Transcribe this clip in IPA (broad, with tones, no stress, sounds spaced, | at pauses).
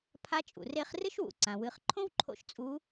pʰ a˧˥ t͡ʃʼ ṵ˩ r e˧˥ χ r ɨ˥ ʃ w ṵ˩ ǀ ã˩ w ɨ˩˧ χ ǃʰ õ˥ w ǃʰ o̰˧ ʃ t͡sʼ u˧˥